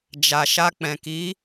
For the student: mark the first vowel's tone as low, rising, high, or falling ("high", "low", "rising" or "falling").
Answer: low